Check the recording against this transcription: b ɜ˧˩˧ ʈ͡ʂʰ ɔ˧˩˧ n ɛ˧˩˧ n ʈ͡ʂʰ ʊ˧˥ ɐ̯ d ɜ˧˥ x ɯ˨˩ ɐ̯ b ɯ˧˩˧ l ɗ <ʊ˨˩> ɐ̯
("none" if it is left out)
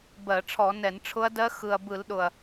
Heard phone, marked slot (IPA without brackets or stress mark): ʊ˨˩